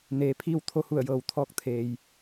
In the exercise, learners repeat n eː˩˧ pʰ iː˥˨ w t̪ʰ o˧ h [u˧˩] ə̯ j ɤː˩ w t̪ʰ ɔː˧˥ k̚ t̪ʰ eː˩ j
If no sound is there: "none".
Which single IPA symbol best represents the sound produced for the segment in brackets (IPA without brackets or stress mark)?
u˧˩